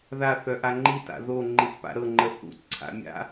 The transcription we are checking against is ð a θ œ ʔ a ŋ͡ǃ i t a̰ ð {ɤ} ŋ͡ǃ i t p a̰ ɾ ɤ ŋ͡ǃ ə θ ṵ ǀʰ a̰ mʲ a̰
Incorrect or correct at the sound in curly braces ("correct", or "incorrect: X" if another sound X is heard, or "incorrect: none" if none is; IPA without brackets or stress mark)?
incorrect: o